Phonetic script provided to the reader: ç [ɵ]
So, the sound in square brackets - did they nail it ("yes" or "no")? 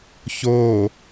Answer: no